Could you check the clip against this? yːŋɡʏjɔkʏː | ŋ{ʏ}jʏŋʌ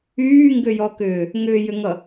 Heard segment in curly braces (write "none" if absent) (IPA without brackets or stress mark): ʏː